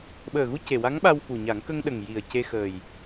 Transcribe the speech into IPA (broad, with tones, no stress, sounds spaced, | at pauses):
ɓ əː˨˩ ɣ u˧ c e˨˩ w a˧˥ ŋ ɓ a˧ w f u˨˩ ɲ a˨˩˦ ŋ k ə˧ ŋ ɗ ə˨˩ ŋ j i˨˩ ə̯ c e˧ x əː˨˩ j